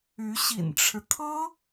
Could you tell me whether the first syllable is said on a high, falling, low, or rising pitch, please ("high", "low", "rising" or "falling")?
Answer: rising